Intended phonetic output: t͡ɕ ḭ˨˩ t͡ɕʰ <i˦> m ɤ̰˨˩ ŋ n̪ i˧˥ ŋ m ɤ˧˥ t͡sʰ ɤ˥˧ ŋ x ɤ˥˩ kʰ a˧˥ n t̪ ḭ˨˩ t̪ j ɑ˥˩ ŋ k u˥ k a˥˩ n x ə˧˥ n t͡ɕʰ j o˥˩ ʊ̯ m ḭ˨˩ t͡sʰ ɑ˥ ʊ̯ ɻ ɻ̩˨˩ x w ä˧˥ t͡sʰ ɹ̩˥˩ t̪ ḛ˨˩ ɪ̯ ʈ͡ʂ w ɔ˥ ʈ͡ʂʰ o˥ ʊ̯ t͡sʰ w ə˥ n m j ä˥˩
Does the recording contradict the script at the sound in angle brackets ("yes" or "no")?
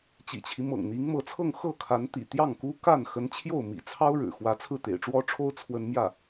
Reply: no